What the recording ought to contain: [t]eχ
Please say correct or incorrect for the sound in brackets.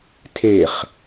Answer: incorrect